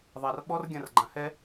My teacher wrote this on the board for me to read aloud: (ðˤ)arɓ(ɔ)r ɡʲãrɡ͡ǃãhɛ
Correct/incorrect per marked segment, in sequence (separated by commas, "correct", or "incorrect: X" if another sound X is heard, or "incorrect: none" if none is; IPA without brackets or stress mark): correct, correct